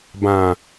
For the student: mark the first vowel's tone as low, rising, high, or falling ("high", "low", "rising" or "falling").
low